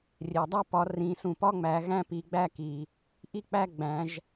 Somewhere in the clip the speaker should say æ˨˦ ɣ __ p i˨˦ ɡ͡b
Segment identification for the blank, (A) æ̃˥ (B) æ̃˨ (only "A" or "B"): A